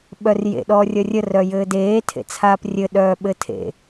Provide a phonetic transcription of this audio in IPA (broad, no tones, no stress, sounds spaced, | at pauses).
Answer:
ɓ œ r j ḛ ɗ ɔː rʲ ʌ rʲ ə r œ j ɘː d eː tʰ ḛ t͡sʰ aː p rʲ ɘ ɗ œː ɓ ɘ tʰ ḛ